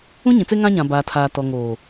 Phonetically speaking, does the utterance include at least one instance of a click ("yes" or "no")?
no